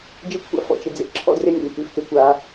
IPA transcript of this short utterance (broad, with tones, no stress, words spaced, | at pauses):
d͡ʒɪ˦kʷʰa̰˦ fɔ̰˧t͡ʃɪ˧ d͡zḛ˧ǁʰɔ̰˦drɪ˦nʲa̰˨nʲ kʉ˧ftɪ˨˦kʷa˧